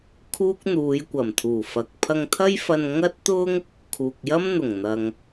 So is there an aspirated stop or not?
yes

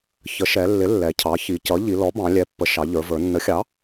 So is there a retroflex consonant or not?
no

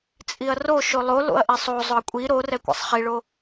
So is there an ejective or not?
yes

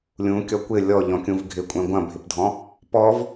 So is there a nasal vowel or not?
yes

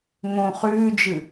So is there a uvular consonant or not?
yes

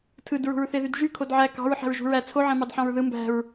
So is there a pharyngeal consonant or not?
yes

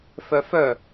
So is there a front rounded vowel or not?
yes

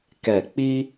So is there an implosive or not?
no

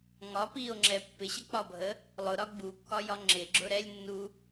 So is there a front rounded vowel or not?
no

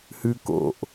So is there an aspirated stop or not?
no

